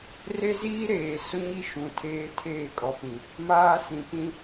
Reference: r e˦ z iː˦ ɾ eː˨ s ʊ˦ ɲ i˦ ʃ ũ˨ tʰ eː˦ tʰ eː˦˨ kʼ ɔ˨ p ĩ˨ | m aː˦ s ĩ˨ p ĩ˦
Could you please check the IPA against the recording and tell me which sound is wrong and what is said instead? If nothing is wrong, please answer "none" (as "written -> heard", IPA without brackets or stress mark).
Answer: none